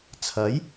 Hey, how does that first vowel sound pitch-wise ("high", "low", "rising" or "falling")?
rising